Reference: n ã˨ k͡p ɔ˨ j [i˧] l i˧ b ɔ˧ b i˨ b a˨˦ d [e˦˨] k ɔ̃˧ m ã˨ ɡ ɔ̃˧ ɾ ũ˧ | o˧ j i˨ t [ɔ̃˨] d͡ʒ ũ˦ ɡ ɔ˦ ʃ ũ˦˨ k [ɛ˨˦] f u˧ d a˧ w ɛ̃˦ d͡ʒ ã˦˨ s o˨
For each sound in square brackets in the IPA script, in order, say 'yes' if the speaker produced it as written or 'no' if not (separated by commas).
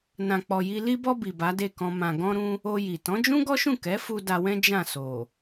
yes, yes, no, yes